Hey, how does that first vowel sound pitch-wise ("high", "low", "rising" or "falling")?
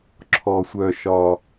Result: high